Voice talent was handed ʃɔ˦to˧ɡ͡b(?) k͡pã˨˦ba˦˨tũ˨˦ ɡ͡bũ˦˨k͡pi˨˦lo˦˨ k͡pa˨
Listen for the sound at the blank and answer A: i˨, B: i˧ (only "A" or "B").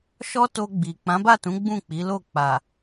A